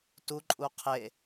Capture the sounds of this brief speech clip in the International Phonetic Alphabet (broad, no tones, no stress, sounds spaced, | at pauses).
t u ǃʼ u qʰ e